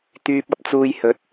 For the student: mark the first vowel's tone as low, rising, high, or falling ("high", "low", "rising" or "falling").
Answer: low